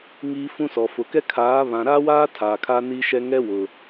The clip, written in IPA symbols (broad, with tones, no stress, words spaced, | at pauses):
ŋiː˦fũ˦sɔ˨ fʊ˨kɛ˦ kʰaː˨˦ βã˨ɾaː˦waː˦ tʰaː˨kʰa˦ ni˦ʃɛ˦ ŋɛ˦ wʊ˨